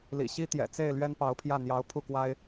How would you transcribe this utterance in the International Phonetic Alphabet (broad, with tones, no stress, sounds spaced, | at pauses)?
l ḭ˨˩ ɕ i˥ t̪ j ɛ̰˨˩ t͡s e˥˩ ɪ̯ l ɥ ɛ˥ n p ɑ˧˥ ʊ̯ pʰ j ä˥˩ n̪ j ɑ˧˥ ʊ̯ pʰ u˥˩ k w a˥ ɪ̯